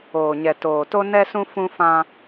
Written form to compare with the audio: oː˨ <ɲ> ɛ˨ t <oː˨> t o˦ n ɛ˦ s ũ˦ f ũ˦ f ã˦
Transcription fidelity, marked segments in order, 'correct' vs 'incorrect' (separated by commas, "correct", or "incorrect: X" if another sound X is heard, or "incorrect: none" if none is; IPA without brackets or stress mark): correct, correct